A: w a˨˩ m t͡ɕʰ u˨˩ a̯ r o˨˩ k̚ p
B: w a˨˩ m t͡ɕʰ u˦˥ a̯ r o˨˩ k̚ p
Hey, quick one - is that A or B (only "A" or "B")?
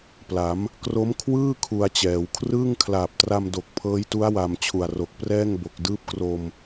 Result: A